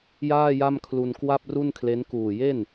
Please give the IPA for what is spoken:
jaː˥˩ja˥˩mkʰlu˧n kwa˥˩p̚ ru˥˩nkʰle˦˥n kuː˨˩je˥˩n

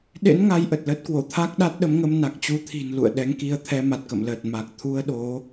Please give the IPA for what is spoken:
ɗḛ˧˥n ŋa˧jʔə˨˩t̚ləː˦˥t̚kwo˧˩ t̪ʰa˦˥k̚ɗa˦˥t̚ɗə˨˦mŋə˧m na˨˩k̚t͡ɕu˧t̪ʰi̤˨˩n lṵ˧˨ə̯ɗɛ˨˦ŋki˧ə̯ t̪ʰɛ˧ma˨˩t̚kə̰˧˨mləː˨˩t̚ ma˨˩k̚t̪ʰu˧ə̯ɗo˨˦

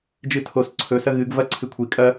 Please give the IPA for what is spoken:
d͡ʒɨtʰos ǀʰɵ sɐɣɨɡ vɐ ǀʰɨkʷʰi kʼɐ

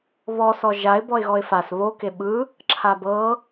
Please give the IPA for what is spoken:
βɔsɔ ʒaɪ̯ bɔɪ̯ɣɔɪ̯fas βoke ɓɯ | ǁʰabɤ

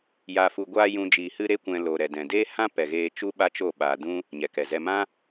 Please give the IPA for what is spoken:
ja˨fu˨ ɡʷaː˧ jũ˨d͡ʒiː˨hɨ˧ ɾe˦kʷɛ̃˧ lo˨ɾɛ˨ dɛ̃˨deː˦ hã˦pɛ˨ɣeː˧ t͡ʃu˦ɓa˦t͡ʃo˦˨ ɓaː˧dũ˦ | ɲɛ˨kɛ˨zɛ˧ mã˦

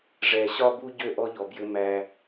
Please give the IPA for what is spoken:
ʐɛ˨ɕɒ˦bu˦ ɟø˥ʔɔ˦ʎɔ˨bjɘ˦ mæ˦

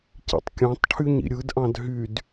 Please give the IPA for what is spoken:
cḭtˤkʲɑ̃tˤʈʰyɲ ḭɾʲɯdʔɑ̃d ɦyd

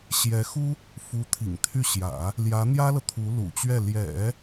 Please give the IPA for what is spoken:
ɕjɛ˧˥xu˥ | fu˧˥t̪ʰḭ˨˩ŋ t̪ʰy˥˩ ɕjä̰˨˩˦ | ljä˧˥n̪jä˥lɤ˨ t̪ʰu˧˥lṵ˨˩t͡ɕɥɛ˥˩ ljɛ̰˨˩˦

